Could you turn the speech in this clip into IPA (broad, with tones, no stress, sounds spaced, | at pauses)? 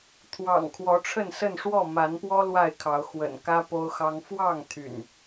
t̪ʰ w ɑ̰˨˩ ŋ kʰ w ɔ˨˦ ʈ͡ʂʰ ə˥˨ n s ə˥˨ n ʂ w ɔ˥˨ m a˨˦ n p w ɔ˦ l w a˥˨ ɪ̯ kʰ ɑ˨˦ ʊ̯ x w ə̰˨˩ n k ä˦ p o˦ ʊ̯ x ɑ˦ ŋ f w ɑ˥˨ ŋ t̪ʰ y̰˨˩ n